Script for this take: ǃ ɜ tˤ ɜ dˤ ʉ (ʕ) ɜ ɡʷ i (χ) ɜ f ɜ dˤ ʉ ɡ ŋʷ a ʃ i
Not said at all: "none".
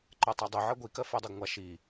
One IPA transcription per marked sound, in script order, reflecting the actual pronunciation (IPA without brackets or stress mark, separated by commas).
ʕ, k